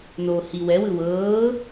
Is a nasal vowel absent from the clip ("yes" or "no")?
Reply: yes